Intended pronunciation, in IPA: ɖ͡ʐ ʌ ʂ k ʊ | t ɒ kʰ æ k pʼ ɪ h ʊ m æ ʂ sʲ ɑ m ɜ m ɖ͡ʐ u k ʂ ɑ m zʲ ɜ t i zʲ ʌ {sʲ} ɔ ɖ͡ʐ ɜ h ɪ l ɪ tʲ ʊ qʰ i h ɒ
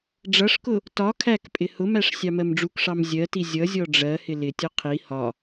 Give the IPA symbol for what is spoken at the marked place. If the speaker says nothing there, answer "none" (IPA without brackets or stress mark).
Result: zʲ